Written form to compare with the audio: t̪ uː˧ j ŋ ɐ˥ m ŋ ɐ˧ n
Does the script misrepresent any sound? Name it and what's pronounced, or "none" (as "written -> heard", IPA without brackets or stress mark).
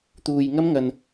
none